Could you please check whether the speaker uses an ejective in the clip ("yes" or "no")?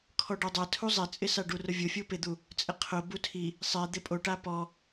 yes